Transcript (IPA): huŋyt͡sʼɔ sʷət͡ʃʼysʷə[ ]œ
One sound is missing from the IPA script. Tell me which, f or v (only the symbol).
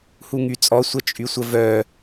v